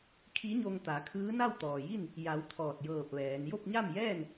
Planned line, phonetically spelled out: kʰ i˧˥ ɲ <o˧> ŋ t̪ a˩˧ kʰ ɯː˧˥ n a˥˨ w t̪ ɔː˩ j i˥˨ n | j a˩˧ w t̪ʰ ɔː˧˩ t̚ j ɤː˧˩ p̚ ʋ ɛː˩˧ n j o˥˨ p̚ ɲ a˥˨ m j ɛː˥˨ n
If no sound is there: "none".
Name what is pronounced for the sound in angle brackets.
o˧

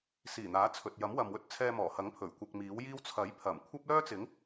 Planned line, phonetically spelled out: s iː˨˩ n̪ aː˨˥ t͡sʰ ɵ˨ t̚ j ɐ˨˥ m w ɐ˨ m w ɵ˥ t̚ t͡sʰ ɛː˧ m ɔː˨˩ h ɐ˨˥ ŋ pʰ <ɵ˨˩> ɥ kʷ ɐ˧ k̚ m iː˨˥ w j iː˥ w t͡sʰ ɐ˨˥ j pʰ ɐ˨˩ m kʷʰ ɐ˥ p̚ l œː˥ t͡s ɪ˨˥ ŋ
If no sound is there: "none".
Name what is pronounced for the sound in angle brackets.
ɵ˨˩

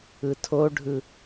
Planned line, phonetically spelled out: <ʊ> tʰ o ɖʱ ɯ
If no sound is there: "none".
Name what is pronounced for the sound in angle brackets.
ɯ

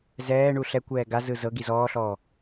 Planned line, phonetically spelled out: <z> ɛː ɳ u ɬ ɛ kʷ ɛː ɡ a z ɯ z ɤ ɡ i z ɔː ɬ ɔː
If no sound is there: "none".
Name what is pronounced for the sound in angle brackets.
z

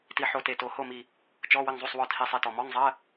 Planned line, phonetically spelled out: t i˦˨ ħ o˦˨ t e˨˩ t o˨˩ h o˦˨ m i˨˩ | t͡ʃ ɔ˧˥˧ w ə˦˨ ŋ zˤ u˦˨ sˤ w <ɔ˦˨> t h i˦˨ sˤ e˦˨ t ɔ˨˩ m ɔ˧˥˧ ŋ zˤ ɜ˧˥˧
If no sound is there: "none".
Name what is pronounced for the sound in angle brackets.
ɔ˦˨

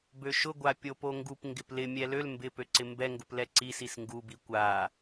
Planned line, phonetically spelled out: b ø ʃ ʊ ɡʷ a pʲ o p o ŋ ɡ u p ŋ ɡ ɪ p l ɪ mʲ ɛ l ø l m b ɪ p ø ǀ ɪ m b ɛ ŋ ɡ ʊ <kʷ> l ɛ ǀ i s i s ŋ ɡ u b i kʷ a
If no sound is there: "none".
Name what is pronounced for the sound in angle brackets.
p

